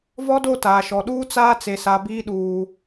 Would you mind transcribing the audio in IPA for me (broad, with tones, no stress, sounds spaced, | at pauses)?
v ɔ˦ d o˦˨ t aː˨ ʃ ɔ˨ ɗ uː˦ t͡s aː˦ t͡s e˨ s a˨ b iː˦ ɗ uː˨